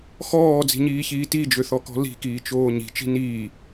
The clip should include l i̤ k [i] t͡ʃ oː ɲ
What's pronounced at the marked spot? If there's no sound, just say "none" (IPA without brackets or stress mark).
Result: iː